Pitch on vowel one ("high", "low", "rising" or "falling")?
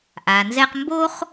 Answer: low